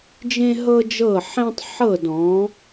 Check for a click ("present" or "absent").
absent